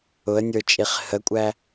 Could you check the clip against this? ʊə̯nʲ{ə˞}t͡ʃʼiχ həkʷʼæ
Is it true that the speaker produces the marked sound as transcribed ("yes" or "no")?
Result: yes